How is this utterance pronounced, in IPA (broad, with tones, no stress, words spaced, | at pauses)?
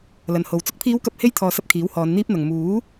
lɐ˨nho˨w t͡sʊ˨˥k̚pʰiː˨˧wkɐ˨p̚he˧j t̪ʰɔː˨sɐ˧p̚ kʰiː˨˥whɔː˨˧nn̪iː˥p̚n̪ɐ˨ŋ muː˨˥